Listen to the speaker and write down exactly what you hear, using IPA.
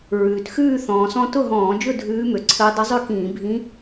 ɹ ʉː˩ t x ʉː˥˧ θ ɔ̃ː˩ s ɔ̃˧ t ʊ˥˧ ɦ ɔ̃ː˧˩˧ d͡ʒ ʊ˥˧ dʱ ʉː˧˥ m ø˩ ǀʰ əː˧˥ dˤ ʊ˧˥ zˤ ø˥˧ k ĩː˧˩˧ bʱ ĩ˧˥

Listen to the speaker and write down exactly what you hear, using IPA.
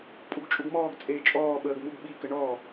pʼ u ɡ t͡ʃʼ u ɡ m ɔː ɡ t͡sʼ eː t͡ʃʼ ɔː ɓ əː ɡ m u ɡ ɓ i k ə ɳ ɔ

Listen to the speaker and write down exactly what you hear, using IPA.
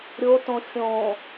ɾʲ o t õ xʲ õ

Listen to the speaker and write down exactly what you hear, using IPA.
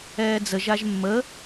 ɛː d͡z ə ʒ a ʒ mː ə

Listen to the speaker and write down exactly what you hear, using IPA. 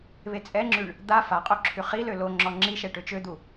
β e t͡sʼ ɛ ŋ͡ǁ y ɳ | d̪ a f a qʼ o ǁʰ y χ i l ø l o ŋ͡ǁ ɔ ŋ͡ǁ i ʃ ɛ ʈ ø t͡ʃ ø d̪ u

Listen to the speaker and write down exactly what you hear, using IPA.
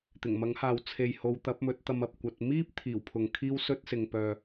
t̪ ɪ˨˩ ŋ m ɐ˨˥ ŋ h aː˨ w t͡sʰ e˨ j h o˨˧ w t̪ ɐ˨˥ p̚ m ɵ˨˥ t̚ t̪ ɐ˧ m ɐ˨ p̚ kʷ ɐ˧ t̚ m iː˥ p̚ t̪ʰ iː˨˩ w pʰ ʊ˨ ŋ kʰ iː˥ w s ɵ˥ t̚ s ɪ˨ ŋ p œː˨

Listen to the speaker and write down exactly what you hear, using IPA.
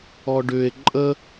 ɔ ɖ ʏ e̯ ǃʼ ə

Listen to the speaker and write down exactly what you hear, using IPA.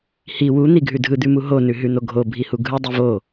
h i w u n̪ i ɡʱ ʉ dʱ ɯ d̪ ʉ m u ɦ o n ʉ ɦ ʉ n̪ o ɡʱ o bʱ i h u ɡʱ ɯ dˤ i v o

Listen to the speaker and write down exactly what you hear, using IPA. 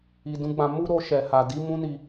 i˨ d ũ˧ ɡ͡b ã˧ m u˦ ɾ o˧ ʃ ɛ˨ h a˨ d i˨˦ m ũ˦ n i˧

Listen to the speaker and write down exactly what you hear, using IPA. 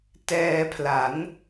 t ɛː˧ pʰ l a˩˦ n

